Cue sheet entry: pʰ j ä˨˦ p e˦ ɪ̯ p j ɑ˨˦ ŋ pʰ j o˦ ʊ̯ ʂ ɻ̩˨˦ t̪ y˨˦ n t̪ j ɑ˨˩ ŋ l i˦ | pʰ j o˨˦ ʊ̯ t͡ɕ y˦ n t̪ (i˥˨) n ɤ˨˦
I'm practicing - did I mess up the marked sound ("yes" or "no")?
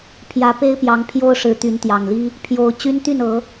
yes